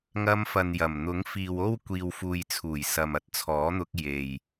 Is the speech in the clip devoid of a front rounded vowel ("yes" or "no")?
yes